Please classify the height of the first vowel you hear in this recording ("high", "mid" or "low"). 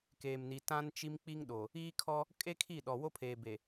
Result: mid